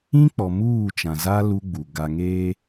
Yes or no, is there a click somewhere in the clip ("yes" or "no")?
no